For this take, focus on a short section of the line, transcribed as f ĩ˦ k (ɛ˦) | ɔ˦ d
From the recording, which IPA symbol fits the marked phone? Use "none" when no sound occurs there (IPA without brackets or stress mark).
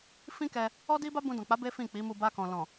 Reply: ɛ˧